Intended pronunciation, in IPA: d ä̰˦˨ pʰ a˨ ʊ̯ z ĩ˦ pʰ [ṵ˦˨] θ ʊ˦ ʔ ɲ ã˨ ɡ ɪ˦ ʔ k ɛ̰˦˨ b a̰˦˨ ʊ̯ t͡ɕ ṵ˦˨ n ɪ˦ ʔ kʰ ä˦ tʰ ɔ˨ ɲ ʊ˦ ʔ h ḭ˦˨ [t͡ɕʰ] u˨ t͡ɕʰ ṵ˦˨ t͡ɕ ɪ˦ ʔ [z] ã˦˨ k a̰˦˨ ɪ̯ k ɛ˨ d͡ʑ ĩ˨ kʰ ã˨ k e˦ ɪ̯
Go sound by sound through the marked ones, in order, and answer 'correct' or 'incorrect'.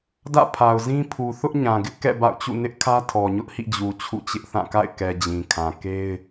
incorrect, incorrect, incorrect

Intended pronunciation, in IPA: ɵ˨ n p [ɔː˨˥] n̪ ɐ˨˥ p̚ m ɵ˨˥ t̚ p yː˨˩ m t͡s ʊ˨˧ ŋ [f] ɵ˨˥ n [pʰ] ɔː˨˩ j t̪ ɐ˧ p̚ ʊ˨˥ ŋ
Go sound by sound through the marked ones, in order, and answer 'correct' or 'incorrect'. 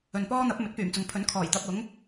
incorrect, incorrect, incorrect

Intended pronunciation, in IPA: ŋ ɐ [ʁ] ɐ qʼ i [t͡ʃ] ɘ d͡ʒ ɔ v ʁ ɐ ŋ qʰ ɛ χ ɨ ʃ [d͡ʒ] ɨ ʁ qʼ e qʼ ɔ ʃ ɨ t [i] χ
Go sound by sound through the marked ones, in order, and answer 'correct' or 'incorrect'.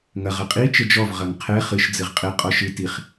correct, correct, incorrect, correct

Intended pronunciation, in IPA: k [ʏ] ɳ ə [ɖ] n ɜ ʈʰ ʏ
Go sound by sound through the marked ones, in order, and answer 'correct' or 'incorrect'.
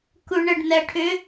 incorrect, correct

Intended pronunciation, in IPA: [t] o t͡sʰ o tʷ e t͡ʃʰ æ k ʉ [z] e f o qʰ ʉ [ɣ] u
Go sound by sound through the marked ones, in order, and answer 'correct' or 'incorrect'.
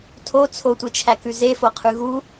incorrect, correct, correct

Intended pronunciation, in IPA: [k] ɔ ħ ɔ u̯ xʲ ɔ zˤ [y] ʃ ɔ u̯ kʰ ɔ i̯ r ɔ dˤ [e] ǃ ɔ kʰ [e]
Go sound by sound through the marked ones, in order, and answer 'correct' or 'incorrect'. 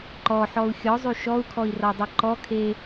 incorrect, correct, incorrect, correct

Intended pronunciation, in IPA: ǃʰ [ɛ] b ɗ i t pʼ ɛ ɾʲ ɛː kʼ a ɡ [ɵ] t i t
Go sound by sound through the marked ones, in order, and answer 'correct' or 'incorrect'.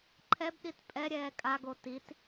correct, incorrect

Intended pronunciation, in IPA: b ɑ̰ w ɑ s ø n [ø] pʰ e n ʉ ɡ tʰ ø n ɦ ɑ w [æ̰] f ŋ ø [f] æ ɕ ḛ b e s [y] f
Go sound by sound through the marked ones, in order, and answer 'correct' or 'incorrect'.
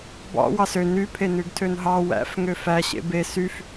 incorrect, correct, correct, correct

